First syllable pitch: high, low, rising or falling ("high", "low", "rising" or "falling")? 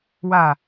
falling